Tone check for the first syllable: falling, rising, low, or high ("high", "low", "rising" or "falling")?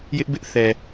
high